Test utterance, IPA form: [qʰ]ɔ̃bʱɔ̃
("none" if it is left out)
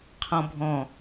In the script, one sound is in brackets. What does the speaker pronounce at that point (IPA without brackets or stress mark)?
qʰ